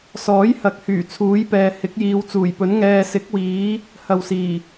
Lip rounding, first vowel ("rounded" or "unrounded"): rounded